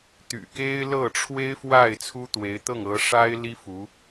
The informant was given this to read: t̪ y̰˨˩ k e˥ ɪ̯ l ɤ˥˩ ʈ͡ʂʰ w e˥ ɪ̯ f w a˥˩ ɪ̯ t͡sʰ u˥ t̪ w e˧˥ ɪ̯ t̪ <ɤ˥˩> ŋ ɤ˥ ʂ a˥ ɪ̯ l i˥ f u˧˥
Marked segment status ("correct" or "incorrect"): correct